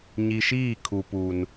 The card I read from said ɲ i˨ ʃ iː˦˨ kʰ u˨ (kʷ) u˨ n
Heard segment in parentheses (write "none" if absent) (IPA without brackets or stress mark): p